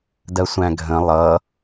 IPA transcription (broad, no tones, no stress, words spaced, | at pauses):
dɜsʷæ̃ɡʱə̃ lˠʌ